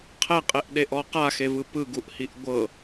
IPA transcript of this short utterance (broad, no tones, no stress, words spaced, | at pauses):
qʰɛqʼeʔɗeʔɔ qaxevɯ pɯɡuʔhiʔ ɡʷɤ